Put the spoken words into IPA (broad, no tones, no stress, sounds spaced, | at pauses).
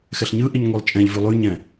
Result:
x ɛ ɬ ɲ ɯ ʔ i ɲ ŋʷ i lˠ t͡ʃʼ ɛ̃ ʎ v ʉ lˠ ʉ ɲ ɛ̃